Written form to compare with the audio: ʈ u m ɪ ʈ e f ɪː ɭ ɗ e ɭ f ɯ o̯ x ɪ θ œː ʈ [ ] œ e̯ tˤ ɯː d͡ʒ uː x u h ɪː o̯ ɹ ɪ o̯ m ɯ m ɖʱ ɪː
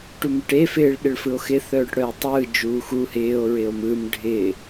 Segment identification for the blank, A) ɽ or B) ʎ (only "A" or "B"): A